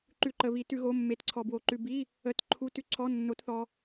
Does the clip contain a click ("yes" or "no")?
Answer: yes